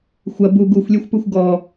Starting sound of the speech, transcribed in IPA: xʷ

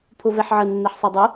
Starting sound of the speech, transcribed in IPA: pʰ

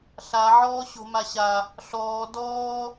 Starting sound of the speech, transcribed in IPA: ɬ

